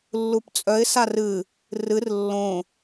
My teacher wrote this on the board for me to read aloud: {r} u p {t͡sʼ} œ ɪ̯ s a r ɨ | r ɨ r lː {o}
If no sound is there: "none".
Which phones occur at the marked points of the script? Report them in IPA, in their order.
lː, t͡sʼ, õ

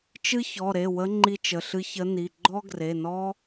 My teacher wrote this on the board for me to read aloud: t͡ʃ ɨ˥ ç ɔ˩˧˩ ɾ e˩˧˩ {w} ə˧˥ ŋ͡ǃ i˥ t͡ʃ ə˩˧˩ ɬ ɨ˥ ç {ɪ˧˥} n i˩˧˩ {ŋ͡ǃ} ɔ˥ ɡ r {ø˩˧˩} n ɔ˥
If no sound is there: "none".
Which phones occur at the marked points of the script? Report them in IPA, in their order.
w, ə˧˥, ɡ͡ǃ, e˩˧˩

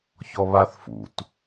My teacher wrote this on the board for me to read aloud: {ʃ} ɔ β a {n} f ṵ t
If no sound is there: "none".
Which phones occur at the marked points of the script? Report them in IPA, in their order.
ç, θ

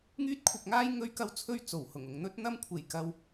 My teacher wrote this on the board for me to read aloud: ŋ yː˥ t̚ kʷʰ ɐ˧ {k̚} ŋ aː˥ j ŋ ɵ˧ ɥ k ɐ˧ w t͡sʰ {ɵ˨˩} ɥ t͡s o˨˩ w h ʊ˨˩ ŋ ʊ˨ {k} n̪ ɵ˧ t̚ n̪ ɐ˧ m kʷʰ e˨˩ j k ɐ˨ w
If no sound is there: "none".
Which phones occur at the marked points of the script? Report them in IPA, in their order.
k̚, ɵ˧, ŋ

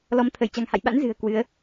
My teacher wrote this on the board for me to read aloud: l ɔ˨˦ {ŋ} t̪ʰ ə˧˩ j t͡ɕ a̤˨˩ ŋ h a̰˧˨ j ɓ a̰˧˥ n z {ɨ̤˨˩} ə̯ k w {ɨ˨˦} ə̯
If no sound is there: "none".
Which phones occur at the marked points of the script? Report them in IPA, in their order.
m, ɨ̤˨˩, ɨ˨˦

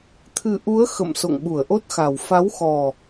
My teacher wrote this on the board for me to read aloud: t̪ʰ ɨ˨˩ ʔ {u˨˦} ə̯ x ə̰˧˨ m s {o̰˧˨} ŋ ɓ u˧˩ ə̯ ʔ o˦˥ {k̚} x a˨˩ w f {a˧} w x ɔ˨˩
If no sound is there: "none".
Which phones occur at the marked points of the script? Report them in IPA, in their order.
u˨˦, o̰˧˨, t̚, a˨˦

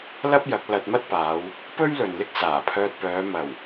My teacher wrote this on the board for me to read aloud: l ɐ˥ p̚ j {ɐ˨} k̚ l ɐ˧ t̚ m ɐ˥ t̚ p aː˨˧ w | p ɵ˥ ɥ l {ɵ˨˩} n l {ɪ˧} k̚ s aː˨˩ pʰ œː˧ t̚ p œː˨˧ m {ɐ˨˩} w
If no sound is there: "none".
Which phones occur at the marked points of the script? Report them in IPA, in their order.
ɐ˨˥, ɵ˨, ɪ˥, ɐ˨˩

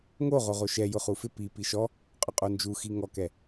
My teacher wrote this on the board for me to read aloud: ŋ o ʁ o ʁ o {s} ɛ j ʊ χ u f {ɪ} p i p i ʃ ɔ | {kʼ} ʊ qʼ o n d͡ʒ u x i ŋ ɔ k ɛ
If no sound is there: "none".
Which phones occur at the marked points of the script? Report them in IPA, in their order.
ʃ, ɪ, qʼ

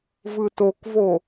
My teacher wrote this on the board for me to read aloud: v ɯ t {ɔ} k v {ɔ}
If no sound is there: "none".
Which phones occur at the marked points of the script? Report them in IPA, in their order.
o, o

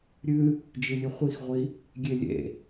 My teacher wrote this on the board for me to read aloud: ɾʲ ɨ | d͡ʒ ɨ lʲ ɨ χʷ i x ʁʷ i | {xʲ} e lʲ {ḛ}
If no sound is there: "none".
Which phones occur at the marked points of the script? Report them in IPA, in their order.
ɡʲ, ḛ

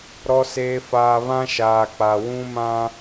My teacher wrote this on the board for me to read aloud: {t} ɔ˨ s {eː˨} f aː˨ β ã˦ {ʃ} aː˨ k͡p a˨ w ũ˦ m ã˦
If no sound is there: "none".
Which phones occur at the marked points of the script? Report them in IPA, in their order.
ɾ, eː˨, ʃ

